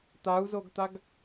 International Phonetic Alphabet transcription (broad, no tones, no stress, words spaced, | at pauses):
t̪au̯zoɡt̪aɡ